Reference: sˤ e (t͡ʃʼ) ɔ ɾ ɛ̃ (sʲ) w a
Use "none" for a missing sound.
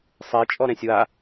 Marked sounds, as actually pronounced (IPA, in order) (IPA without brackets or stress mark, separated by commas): t͡ʃʼ, sʲ